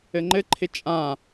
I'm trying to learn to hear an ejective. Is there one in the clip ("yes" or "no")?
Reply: yes